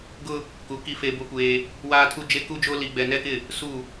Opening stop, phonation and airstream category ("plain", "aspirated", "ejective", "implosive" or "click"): plain